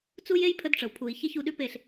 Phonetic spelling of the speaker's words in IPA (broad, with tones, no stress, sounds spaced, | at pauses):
t͡s u˦ j e˦ j pʰ ə˧ d ʈ͡ʂ ə˨ w pʰ u˨ i̯ ç e˦ ç u˧ ɗ ʉ˦ p e˦˨ ɬ